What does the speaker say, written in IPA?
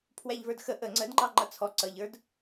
pʰ w æ ʎ v ə˞ d x ə ʔ ə ŋ͡ǀ ə d ŋ͡ǃ ɑ ŋ͡ǃ ʌ t͡sʰ ɔ ǀ ʌ ʎ ə˞ d

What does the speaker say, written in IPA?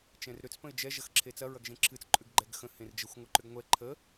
t͡ʃ ɛ̃ r ɾ ʏ t͡s p ə̃ ɪ̯ d͡ʒ ɛ ʒ ɐ x ǁʰ e t͡s ɐ ɹ ɐ ɡ ʒ ẽ ǁʰ ɨ t͡s ǃʼ ʏ ɡ ɡ͡ǃ ɛ ɡ x ə̃ h ẽ r d͡ʒ ə xʷ ŋʷ ɨ ǃ ʏ ɡ ŋʷ ɛ ǃʰ ə

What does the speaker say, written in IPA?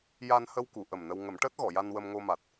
j a˧ n h ə˧ w k u˨˩˨ ʔ ə˨˩ m n ə˧ w ŋ ə˨˩˦ m ʈ əː˦˥ t̚ ɣ ɔ˨˩˨ j a˧ n w ə˧ m ŋ o˧ m a˨˩ t̚

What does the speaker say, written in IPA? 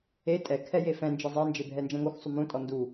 e tʼ ɛ kʰ ɛ j e f ɛ̃ n d͡ʒ e zˤ e n d͡ʒ e bʱ ɛ n d͡ʒ ɛ̃ ŋ o x sˤ u m ũ tʼ ɔ n d u

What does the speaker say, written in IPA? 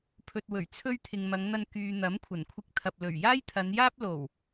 pʰ ɵ˨ t̚ w ɵ˨˩ ɥ t͡sʰ ɵ˧ ɥ t̪ʰ ɪ˨ ŋ m ɐ˨˧ ŋ n̪ ɐ˧ n k yː˨ n̪ ɐ˨˥ m kʷʰ ɐ˨˩ n kʷʰ ɪ˧ k̚ t̪ʰ ɐ˨ p̚ l ɵ˨˩ ɥ j aː˥ j t̪ʰ ɐ˨˧ n j aː˥ p̚ l o˨˩ w

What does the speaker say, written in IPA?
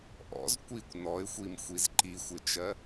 ʔ ɔ̰ z kʷ i kʷ n ɔ ɪ̯ xʷ i m xʷ i z ǃ i xʷ ɪ t͡ʃ ɜ

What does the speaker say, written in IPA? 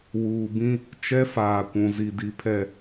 w uː˨ b ĩ˦ | t͡ʃ ɛ˦ f aː˨ kʷ ũ˨ z i˨ d i˨ pʰ ɛ˨

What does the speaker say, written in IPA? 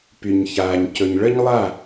p y˩ ɲ ç aː˩ ɲ c ɵ˩ ɲ ɭ ə˥ ɲ lˠ a˥˩

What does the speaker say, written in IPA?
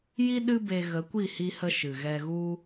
j i˦ ɗ ɨ˦ b e˧ ɣ ə˨˦ kʷ i˦˨ h i˧ h ə˧ ʃ ɨ˨ ɣ ɛ˧ ɣ u˦

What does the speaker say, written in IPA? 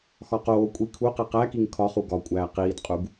x ɒ q oː kʷʼ i kʰ u q e q æ k i ŋ kʰ ɒ χ u ɡ ɒ kʷʼ æː q iː d qʼ u ɡ

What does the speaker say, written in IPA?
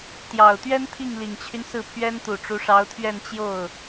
t̪ j ɑ˨˩ ʊ̯ t̪ ɥ ɛ˥ n t̪ʰ i˥˩ ŋ l i˨˩ ŋ t͡ɕʰ y˦ n s ɹ̩˥˩ pʰ ɥ ɛ˥ n t̪ u˨˩ ʈ͡ʂ u˧˥ ʂ ɑ˧˥ ʊ̯ t̪ʰ ɥ ɛ˥˧ n t͡ɕ j o˥˩ ʊ̯

